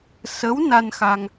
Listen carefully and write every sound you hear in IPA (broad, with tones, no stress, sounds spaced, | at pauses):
s ə˧˥ w n a˧ n x a˧ ŋ